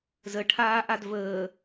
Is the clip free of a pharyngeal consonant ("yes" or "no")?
yes